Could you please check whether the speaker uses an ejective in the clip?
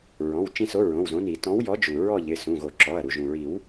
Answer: no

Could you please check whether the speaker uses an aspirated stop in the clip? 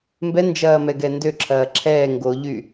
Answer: yes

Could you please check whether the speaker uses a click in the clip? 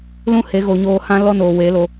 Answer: no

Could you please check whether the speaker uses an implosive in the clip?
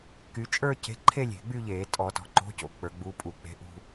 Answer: no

